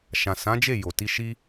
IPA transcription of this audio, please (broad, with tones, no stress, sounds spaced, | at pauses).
ʃ ã˨ s ã˨˦ d͡ʒ e˦˨ j o˨ t i˧ ʃ i˦